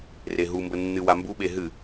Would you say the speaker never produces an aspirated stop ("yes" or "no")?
yes